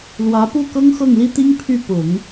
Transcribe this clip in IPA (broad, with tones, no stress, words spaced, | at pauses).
lwä˧˥pu˥˩ kɤ˥ŋxɤ˥˩ŋli˥t̪i˥ŋ pʰy˥˩pʊ˨˩˦ŋ